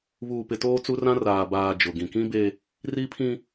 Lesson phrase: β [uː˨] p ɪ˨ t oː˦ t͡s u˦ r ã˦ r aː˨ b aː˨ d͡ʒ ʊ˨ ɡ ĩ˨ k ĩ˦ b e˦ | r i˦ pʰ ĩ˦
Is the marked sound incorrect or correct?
correct